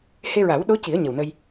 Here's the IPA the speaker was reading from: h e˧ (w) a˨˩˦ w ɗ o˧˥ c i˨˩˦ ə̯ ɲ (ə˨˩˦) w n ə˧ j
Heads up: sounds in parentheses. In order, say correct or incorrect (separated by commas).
incorrect, incorrect